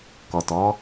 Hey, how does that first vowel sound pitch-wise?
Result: low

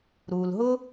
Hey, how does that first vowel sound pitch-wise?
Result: low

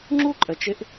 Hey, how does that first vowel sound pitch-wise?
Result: high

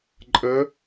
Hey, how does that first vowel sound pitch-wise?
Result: rising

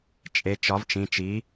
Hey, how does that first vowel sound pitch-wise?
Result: rising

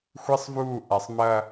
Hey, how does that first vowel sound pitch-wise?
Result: high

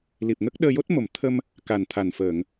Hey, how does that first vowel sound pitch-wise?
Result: low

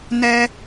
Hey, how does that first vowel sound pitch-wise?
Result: high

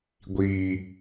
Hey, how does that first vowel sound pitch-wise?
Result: low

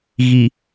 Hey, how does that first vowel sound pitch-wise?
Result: low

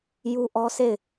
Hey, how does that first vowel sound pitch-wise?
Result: high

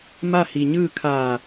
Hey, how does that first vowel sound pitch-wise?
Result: falling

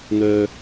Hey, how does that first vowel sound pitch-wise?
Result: low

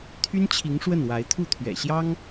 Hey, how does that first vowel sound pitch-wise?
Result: high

